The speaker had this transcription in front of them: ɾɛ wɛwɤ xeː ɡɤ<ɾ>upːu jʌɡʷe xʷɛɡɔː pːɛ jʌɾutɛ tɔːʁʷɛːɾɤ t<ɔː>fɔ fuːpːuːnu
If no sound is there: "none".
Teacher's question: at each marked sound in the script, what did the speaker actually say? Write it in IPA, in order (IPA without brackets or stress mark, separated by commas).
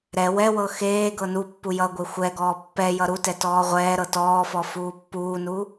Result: n, ɔː